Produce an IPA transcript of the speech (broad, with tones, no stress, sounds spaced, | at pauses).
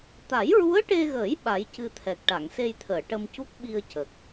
t̪ a˨˩˦ j ɹ u˧˥ ə̯ ʈ e˧ ɣ əː˨˩˦ j ɓ a˨˩˦ j c ɨ˧ t̪ʰ ɛ˨˩ k̚ ʈ a˨˩˨ ŋ s e˧ j t̪ʰ əː˨˩˨ ʈ ə˧ m c u˦˥ k̚ ɓ i˧ ə̯ c ə˨˩ k̚